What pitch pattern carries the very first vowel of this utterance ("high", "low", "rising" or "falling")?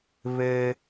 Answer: high